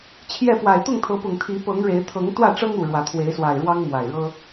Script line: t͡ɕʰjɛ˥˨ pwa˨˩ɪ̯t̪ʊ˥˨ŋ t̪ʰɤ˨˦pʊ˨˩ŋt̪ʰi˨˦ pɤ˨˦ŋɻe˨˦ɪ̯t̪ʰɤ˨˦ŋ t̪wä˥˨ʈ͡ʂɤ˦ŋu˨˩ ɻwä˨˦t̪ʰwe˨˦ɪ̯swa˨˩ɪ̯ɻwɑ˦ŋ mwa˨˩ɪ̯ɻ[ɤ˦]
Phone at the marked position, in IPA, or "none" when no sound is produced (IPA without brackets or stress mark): ɤ˦